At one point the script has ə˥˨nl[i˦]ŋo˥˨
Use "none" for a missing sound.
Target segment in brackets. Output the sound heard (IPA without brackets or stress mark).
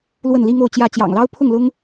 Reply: i˦